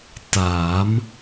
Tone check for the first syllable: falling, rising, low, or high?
rising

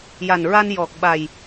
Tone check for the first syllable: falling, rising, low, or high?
low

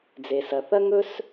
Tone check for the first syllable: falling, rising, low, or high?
low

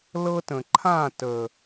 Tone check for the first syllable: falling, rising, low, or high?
high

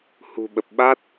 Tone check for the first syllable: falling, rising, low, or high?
low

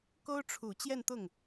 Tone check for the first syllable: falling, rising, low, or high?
high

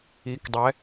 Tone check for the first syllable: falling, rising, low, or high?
rising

